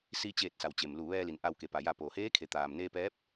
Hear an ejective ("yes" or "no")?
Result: no